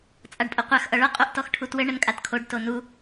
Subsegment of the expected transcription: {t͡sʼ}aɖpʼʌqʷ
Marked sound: correct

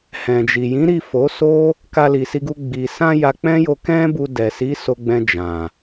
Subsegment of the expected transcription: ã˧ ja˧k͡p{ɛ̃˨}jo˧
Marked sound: incorrect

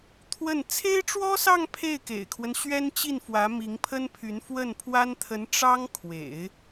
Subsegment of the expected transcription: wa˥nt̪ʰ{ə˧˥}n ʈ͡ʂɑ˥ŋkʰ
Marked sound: correct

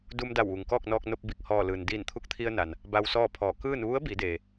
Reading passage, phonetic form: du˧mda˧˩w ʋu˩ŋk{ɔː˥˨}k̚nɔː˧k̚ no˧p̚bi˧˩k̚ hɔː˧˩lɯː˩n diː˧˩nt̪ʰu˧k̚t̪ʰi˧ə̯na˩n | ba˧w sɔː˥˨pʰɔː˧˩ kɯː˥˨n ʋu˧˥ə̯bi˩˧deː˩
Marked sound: correct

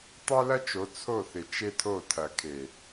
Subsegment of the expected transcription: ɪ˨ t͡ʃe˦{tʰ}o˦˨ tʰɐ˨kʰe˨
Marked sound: correct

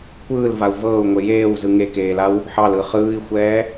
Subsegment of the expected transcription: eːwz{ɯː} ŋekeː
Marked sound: incorrect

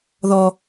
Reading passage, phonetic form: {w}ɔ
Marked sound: incorrect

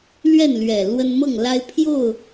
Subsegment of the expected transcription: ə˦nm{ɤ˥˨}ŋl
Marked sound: correct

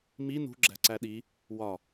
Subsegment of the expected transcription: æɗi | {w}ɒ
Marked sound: correct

